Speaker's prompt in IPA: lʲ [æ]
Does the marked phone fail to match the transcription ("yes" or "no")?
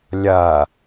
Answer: yes